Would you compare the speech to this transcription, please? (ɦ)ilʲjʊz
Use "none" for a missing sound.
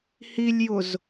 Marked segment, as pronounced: h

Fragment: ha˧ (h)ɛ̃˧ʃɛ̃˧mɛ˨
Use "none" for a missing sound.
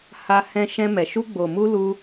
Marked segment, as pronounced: h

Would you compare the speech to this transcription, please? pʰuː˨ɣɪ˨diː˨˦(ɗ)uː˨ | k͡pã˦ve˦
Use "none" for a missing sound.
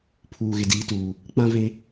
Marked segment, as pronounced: t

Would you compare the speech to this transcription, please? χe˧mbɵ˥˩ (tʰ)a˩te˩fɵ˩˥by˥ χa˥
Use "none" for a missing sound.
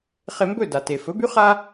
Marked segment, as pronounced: d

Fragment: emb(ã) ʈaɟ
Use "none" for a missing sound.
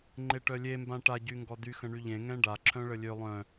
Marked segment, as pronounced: ã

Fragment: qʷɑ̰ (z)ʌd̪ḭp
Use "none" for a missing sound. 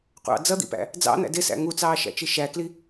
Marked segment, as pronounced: d͡z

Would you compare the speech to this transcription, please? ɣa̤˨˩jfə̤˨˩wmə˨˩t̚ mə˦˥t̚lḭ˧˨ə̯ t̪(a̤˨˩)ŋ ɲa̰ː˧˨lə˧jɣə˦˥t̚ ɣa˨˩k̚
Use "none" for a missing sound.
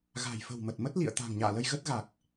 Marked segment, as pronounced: a̤˨˩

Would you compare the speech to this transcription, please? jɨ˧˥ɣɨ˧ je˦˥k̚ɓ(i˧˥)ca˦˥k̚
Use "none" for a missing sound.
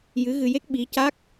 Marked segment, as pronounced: i˧˥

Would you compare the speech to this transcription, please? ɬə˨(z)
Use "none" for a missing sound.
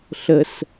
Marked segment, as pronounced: s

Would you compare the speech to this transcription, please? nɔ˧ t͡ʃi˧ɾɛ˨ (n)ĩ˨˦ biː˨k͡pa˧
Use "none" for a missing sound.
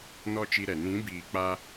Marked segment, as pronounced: n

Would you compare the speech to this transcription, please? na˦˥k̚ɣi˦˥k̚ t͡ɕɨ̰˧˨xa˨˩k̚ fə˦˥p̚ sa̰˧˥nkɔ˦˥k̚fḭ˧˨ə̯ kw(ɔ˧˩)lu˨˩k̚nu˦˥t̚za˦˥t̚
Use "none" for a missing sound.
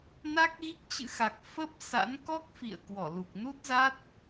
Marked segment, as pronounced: ɔ˧˩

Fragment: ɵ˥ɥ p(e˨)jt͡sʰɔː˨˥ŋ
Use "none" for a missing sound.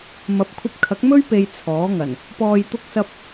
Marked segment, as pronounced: e˧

